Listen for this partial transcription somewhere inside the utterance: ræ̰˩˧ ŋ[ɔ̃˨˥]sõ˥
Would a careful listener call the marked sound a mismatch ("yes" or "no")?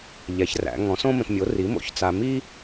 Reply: no